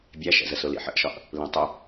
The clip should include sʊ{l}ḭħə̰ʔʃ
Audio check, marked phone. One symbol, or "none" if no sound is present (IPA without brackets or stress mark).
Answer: l